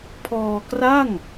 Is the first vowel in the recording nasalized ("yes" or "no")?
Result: no